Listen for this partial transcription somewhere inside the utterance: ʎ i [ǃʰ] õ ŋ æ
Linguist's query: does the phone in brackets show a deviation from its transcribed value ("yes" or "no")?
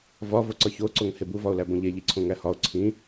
yes